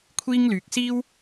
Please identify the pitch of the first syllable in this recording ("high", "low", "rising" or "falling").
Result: high